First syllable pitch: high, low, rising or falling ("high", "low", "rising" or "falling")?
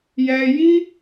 high